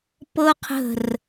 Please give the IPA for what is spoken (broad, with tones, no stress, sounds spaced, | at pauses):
p ɤ˦ qʰ ə̤˧˩ r